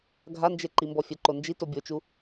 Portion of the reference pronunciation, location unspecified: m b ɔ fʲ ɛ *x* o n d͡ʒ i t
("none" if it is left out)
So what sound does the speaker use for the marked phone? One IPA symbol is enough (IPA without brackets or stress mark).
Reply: ǃ